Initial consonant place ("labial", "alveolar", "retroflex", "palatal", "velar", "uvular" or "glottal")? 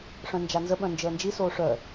retroflex